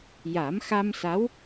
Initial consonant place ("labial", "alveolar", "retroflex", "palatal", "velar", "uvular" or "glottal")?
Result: palatal